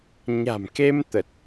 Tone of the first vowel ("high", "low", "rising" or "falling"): low